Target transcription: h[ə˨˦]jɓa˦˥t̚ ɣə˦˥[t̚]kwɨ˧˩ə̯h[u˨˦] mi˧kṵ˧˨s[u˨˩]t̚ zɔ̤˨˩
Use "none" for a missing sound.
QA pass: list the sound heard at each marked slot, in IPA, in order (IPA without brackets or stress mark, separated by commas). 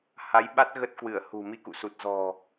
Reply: a˨˦, t̚, ṳ˨˩, u˨˩